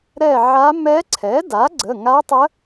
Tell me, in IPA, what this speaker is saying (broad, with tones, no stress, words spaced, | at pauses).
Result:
ɾɛ˦˨ʕa˧˥ mɛ˧˥ ǀʰɛ˩˥da˩˥ ɡ͡ǀə˩˧˩ŋa˧˥tˤə˧˥